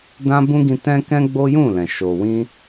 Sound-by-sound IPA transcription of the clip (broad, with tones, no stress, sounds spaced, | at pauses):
d ã˦ b ũ˦ ɡ ĩ˧ t ɛ̃˦ k ɛ̃˦ ɡ͡b o˦ j ũ˦˨ l ɛ̃˨ ʃ o˨ w ĩ˧